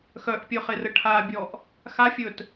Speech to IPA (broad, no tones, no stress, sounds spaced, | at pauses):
x œ ʔ pʲ ɵ χ e r ə ʈʰ a bʲ ɔ ʔ | x a fʲ ɵ t